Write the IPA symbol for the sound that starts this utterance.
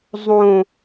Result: zˤ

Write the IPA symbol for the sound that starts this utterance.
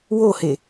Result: w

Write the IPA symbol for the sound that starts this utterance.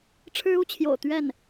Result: ʈ͡ʂʰ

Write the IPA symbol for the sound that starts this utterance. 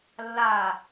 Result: lː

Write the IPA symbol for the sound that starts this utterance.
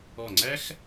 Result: ɔ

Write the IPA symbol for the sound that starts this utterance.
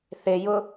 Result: θ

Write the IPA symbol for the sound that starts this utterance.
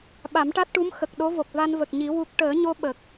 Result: ɓ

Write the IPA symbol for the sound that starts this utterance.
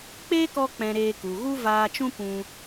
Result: k͡p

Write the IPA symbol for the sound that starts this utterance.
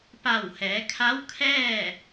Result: p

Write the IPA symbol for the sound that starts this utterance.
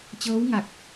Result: t͡ɕ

